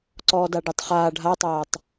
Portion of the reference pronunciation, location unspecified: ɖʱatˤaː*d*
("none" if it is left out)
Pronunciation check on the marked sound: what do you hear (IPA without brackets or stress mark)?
tˤ